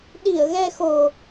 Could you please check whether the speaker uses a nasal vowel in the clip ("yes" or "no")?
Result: no